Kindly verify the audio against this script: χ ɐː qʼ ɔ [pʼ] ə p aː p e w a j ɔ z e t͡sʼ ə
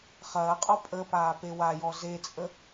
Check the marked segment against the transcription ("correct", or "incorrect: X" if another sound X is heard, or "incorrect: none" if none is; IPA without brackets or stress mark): correct